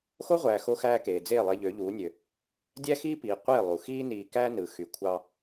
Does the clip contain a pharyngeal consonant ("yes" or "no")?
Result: no